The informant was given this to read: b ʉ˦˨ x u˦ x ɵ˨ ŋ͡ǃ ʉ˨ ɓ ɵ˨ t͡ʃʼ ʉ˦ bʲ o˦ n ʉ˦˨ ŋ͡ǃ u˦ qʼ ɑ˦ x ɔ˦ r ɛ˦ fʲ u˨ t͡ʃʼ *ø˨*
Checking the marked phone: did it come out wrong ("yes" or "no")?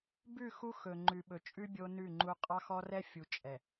yes